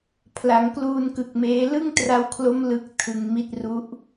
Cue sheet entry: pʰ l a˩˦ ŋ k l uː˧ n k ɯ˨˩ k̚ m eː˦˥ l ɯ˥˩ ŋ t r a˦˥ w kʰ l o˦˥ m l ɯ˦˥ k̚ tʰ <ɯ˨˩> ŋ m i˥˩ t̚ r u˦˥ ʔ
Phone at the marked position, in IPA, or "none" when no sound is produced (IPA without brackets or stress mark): ɯ˧